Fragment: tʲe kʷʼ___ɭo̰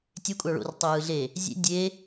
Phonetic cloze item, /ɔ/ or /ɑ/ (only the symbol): ɑ